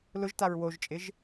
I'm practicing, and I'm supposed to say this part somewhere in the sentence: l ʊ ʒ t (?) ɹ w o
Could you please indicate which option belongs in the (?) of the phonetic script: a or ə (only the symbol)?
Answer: a